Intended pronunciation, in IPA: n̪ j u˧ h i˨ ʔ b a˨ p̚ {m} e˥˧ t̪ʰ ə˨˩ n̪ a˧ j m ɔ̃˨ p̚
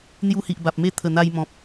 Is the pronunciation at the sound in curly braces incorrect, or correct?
correct